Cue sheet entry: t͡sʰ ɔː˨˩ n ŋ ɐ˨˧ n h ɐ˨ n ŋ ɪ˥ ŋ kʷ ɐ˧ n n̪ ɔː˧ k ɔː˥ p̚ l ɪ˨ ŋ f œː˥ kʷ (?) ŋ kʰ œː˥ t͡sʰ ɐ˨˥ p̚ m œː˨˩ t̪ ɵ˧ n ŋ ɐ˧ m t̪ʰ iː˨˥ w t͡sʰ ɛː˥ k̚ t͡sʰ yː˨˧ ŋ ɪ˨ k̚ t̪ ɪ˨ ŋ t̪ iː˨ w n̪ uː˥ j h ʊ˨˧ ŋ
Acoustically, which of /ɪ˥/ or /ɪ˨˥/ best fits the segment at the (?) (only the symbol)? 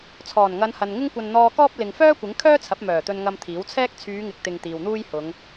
ɪ˨˥